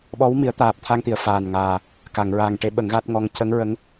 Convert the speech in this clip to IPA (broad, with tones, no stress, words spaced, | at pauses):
ɓɔ˧˥wmi˨˩˦ə̯ t̪aː˨˩p̚t̪ʰa˧ŋt̪i˨˩˨ə̯ faː˨˩nŋaː˨˩ | ka˨˩˨ŋ ɹaː˨˩ŋʈe˧˥ ɓə˨˩˦ŋɣa˦˥t̚ŋɔ˧˥ŋ cə˧˥ŋɹə˧˥ŋ